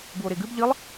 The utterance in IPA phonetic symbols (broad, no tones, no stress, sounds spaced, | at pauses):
b u o̯ ɾ e ɡ ɨ b ʎ ɨ lˠ